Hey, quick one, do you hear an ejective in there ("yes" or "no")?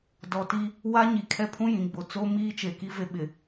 no